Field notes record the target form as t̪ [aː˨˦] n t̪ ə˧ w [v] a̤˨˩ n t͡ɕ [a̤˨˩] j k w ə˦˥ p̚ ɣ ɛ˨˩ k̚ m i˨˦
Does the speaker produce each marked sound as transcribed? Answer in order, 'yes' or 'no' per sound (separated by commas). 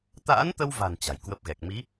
no, yes, yes